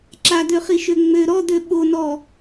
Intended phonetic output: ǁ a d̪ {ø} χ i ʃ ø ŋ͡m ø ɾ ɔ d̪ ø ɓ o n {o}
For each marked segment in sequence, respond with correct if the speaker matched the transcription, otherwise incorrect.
correct, incorrect: ɔ

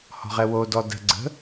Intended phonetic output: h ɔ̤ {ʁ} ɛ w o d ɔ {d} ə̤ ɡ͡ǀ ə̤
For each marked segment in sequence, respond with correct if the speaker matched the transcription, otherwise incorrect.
correct, correct

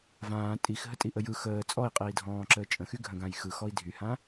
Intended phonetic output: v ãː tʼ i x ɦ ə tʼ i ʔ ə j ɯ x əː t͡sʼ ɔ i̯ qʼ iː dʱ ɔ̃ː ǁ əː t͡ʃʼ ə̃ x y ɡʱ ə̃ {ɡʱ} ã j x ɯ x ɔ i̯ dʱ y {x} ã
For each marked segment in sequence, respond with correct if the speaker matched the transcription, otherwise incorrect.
incorrect: ɡ, incorrect: h

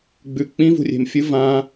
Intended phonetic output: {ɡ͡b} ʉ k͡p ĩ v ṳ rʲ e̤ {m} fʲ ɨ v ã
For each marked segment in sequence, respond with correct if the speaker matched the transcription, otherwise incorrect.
correct, correct

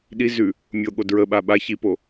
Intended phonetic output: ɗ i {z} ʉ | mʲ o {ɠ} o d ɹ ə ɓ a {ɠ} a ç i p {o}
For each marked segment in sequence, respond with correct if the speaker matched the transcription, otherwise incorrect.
correct, correct, incorrect: ɓ, correct

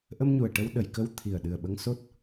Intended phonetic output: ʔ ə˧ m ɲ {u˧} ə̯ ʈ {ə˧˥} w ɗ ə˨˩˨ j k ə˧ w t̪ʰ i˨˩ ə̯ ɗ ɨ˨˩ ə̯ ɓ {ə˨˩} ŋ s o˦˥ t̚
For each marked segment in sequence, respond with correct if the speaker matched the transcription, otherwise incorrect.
incorrect: u˨˩, incorrect: ə˧, incorrect: ə˧

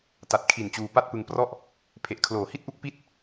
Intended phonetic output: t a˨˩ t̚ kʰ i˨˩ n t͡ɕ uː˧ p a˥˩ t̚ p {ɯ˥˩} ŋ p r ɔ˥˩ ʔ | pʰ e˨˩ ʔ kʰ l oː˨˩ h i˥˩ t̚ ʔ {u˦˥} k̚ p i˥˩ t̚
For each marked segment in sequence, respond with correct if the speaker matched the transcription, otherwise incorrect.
incorrect: ɯ˧, correct

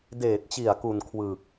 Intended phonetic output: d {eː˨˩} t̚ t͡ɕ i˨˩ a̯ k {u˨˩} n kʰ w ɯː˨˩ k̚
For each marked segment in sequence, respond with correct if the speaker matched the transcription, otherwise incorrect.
correct, correct

